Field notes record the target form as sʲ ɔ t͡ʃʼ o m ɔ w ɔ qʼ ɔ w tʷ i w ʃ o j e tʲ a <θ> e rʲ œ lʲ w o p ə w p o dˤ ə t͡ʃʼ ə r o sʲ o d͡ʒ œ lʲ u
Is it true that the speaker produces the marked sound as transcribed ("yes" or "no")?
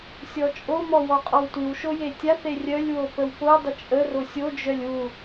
yes